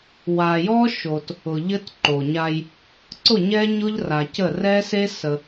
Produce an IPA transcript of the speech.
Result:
wa˨ jɔ˦ʃo˨t | ʊ˨ʎɘ˦tǃo˨ɲa˦j | ǀʊ˦˨ɲɛ˦ɲʊ˦ʎ ra˨cə˦˨ rɛ˦se˦ sə˦

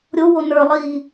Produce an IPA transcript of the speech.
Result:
ɾʲowo nə˞lˠiː

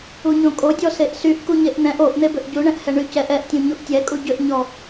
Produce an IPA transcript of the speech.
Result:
uɲõkʼodʲɔ seʔsyʔ kuɲeʔn̪ɛ̃ʔ oʔn̪ebʏʔ ɟuɳɛ̃ʔ hɛɳycɛʔ ɛʔtʲõ ɲuʔtʲɛkʼu ɟʏʔɲɔ

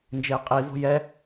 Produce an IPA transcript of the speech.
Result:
nd͡ʒeqʼivo̤ jɛ

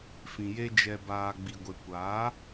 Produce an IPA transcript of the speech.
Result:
fĩ˨je˧ d͡ʒɛ˨baː˨ ɡ͡bi˨ɡʷe˨kʷaː˨˦

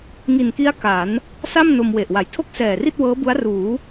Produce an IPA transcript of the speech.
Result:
ŋi˨˩nki˦˥a̯ ka˩˦n | sa˥˩mno˧mwe˨˩ʔ wa˨˩j tʰo˥˩k̚sɛː˨˩ri˥˩t̚ wɤː˦˥bu˦˥a̯ ruː˩˦

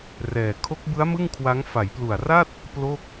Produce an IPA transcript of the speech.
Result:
rɛː˨˩ kʰo˦˥k̚bɯ˦˥a̯ mɯ˥˩ŋkʰwa˦˥ŋ fa˩˦jplu˨˩a̯ra˥˩t̚ | plo˥˩k̚

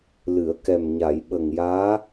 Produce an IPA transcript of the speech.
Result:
lɨ˨˩˨ə̯kɛ˨˩mɲa˨˩˨j ɓə˨˩ŋjaː˧˥

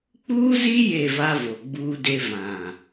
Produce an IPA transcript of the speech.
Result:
k͡puː˦zi˦ je˦˨va˦vo˨ ɡ͡buː˦de˦ vã˨

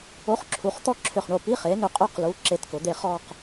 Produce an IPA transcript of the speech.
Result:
o˧˥˧χǁʰu˩˥χ t̪ɔ˥˧ǁʰʏ˧˩χɳo˧˩ pi˧˥˧χe˩˥ nʏ˧˩qʼø˥˧qlu˩˧˩ ǁe˧˥˧tkʊ˩˥d̪e˥˧ χɔ˥˧q

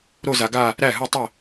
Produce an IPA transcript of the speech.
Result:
ɾo˥˩za˨ɡa˥˩ | ɾæ˥˩ɦɯ˥˩tˤə˥˩

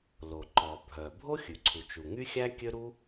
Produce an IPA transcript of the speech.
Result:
lo˩ǃɔ˩bʱœ˩bʱo˥ xʲʉ˩ǀʰu˩t͡ʃu˩ ŋy˥xʲæ˥ kʲø˥ɾu˥

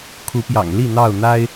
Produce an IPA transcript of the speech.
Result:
kʰu˨˦pjɑ̰˨˩ŋ li˥˨ n̪ɑ˥˨ʊ̯ n̪a˦ɪ̯

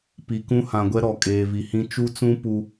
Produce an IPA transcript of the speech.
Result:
pi˨kũ˦hã˨ɡʷɛ˦ ɾɔ˨kʼeː˨vi˨hĩ˦ t͡ʃu˦t͡sũ˦ pu˦

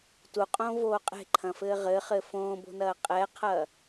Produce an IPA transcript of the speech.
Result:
tuqʼõːvoː qʼe̤ǃʰɐ̃fɘː ʁɘχɘ fõːbo̤nɐː qʼɛqʰɐː

